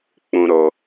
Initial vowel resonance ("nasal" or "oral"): nasal